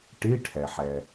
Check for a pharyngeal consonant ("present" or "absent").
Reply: present